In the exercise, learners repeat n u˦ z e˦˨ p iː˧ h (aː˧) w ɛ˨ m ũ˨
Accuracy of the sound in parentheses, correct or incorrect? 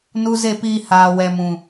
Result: incorrect